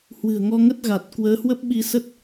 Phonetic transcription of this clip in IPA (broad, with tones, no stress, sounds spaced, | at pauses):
h w ɨ̤˨˩ ə̯ ŋ ɔ˧ ŋ ə˦˥ t̚ ɣ a˨˩ t̚ k w əː˨˦ h w ə˦˥ p̚ ɓ i˧ s ə˦˥ t̚